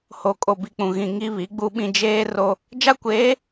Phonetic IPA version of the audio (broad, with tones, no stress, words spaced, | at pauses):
ho˨ kʼo˨bi˨k͡pũ˨ ɣĩ˨ ŋi˦βi˨˦ ɡ͡bu˦ɓĩ˦ d͡ʒeː˦ ro˦ | d͡ʒa˦kʷeː˨˦